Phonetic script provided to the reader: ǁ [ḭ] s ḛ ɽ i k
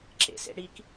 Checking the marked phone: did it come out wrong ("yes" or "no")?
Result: yes